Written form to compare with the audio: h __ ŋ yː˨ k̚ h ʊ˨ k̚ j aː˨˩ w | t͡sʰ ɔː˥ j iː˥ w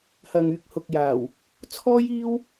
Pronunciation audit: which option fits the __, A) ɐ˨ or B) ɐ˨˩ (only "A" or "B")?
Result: A